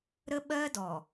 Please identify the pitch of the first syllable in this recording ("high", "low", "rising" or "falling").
high